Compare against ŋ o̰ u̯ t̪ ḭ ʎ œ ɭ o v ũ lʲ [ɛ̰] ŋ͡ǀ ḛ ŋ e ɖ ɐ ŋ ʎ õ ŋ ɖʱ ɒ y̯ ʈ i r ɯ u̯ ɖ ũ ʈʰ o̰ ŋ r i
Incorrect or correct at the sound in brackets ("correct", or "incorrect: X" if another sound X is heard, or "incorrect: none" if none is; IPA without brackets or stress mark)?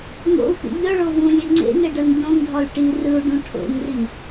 incorrect: ɛ